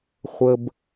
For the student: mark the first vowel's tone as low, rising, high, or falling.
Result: low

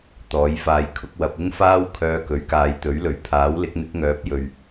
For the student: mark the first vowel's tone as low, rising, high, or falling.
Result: rising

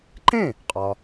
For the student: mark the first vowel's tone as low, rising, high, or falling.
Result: falling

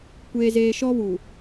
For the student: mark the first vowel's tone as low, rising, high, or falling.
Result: high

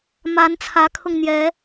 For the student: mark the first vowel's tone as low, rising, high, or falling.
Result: rising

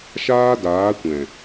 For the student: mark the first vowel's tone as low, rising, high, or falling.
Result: high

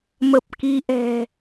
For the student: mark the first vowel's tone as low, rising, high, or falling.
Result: low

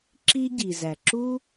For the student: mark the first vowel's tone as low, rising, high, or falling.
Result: high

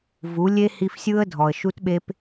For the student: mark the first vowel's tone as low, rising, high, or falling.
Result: rising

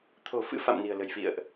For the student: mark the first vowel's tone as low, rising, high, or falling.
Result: low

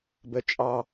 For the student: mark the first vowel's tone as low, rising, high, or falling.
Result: high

